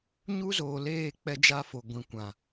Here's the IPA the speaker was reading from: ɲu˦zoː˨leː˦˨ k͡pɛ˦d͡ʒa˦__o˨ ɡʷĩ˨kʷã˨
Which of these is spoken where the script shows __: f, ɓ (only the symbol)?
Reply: f